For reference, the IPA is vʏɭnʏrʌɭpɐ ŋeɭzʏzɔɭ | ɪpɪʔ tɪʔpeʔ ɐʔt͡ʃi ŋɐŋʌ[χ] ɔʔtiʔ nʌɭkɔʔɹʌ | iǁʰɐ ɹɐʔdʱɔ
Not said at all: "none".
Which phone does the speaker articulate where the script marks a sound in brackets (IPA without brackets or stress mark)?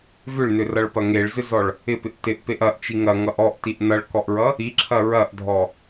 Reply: ʔ